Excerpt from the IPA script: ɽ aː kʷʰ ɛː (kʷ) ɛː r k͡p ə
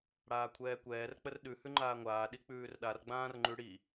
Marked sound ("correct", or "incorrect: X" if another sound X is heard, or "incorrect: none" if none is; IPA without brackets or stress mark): correct